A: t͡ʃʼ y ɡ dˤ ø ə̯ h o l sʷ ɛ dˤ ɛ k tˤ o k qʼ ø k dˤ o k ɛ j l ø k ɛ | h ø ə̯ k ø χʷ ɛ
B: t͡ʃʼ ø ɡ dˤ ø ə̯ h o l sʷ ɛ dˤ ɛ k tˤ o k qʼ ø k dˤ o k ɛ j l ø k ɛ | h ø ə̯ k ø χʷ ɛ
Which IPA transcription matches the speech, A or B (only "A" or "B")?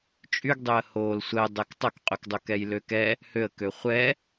A